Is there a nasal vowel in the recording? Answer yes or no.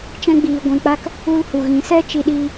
yes